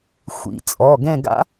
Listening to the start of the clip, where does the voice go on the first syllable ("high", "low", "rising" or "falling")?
rising